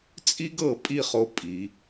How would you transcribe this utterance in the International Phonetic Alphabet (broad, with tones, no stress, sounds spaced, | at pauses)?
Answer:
t͡sʼ i˥ ɡ ɤ˧ pʼ i˥˧ χ o˧ pʼ i˩˧